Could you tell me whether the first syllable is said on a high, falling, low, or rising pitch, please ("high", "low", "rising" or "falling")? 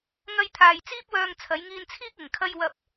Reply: high